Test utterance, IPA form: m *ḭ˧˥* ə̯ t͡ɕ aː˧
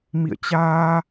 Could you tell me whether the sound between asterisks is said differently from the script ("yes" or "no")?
yes